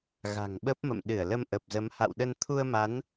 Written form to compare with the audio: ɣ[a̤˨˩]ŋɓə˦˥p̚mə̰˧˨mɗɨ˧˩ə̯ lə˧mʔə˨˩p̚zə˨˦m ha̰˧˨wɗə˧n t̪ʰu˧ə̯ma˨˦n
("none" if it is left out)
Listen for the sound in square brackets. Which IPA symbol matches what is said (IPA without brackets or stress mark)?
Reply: a̤˨˩